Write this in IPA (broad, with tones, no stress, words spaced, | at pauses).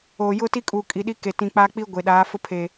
oː˨jʊ˦ti˦kʼu˨ kʼi˨ɗi˦ke˨ tĩ˨k͡pa˦k͡pi˦ ɡʷe˨ɗaː˨˦ fʊ˦pʰe˨